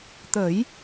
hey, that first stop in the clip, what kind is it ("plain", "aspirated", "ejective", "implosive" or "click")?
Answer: plain